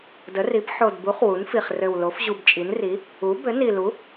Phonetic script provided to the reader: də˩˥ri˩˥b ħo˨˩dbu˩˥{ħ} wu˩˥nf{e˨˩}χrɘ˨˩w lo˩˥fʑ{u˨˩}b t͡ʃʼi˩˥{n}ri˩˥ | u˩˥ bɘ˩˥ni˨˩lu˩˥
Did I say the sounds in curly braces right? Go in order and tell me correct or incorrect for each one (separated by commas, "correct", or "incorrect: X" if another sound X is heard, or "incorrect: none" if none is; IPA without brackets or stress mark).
incorrect: χ, incorrect: i˨˩, correct, correct